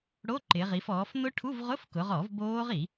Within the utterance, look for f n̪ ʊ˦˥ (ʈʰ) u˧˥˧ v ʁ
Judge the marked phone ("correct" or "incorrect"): correct